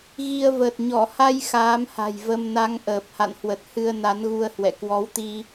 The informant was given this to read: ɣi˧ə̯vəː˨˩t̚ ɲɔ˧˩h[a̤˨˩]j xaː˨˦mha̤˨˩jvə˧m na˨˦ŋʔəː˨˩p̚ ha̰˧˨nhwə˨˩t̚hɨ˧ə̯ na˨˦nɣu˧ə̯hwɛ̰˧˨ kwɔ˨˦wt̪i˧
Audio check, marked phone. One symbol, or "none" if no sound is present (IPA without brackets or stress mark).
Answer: a˧